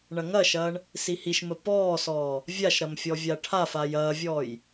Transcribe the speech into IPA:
ɳ ɐ ŋ ɐ ʃ ɐː ɳ | s i h i ʃ m ə p ɔː s ɔː | vʲ a ʃ ɾ ɐ m fʲ ɔ vʲ a ʈʰ a f a j ɐː vʲ ɔː j

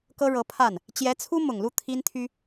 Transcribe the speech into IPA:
k ɤ˥ ɻ ɤ˧˥ pʰ a˥˩ n | t͡ɕ j ɛ˧˥ t͡sʰ u˥ m ʊ˨˩ ŋ l u˥˩ t̪ʰ i˥ n t̪ʰ y˥

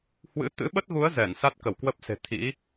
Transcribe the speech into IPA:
h w ɨ̰˧˥ t̪ ɨ̰˧˥ ɓ ə˦˥ t̚ ɣ u˨˦ ə̯ z ɛ˧˩ n s a˦˥ t̚ k ə˧˩ w k w ə˦˥ p̚ s e̤˨˩ t̪ʰ ḭ˧˥

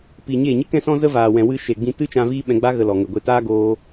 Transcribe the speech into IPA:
p iː˨ ɲ eː˦˨ ɲ ɨ˦ k ɛ̃˦ s ɔ̃˦ z ə˦ v aː˨ w ɛ̃˨ w ɨ˧ ʃ e˨ ɡ͡b ĩ˧ t ɨ˦ t͡ʃ ã˧ v iː˦ ɓ ɛ̃˧ ɡ͡b a˦ ɣ ə˧ l ɔ˨ ŋ ə˨ ɡʷ e˧ t aː˦ ɡ oː˦

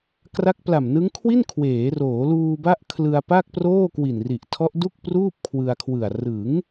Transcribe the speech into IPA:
k r a˦˥ k̚ p l a˨˩ m n ɯ˦˥ ŋ kʰ w i˥˩ n kʰ w eː˩˦ r oː˩˦ l uː˧ b a˦˥ ʔ kʰ l ɯ˧ a̯ p a˥˩ k̚ p r oː˥˩ k w i˨˩ n r i˨˩ ʔ tʰ ɔ˦˥ ʔ d u˥˩ k̚ p r uː˥˩ p̚ kʰ w ɯ˧ a̯ kʰ w ɯ˨˩ a̯ r ɯ˩˦ ŋ

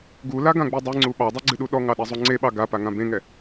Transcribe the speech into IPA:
ɡ u l a ɡ ã ɡ͡b i dˤ ɨ ŋ͡ǀ u ɓ ɑ dˤ e ɡ͡ǀ ɨ ɗ u ɗ ɔ ŋ ɑ ɗ ɛ zˤ u ŋ͡ǀ e ɓ ɑ ɡ a p a ŋ ã b ẽ ŋ ɛ

